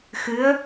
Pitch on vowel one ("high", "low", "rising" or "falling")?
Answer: rising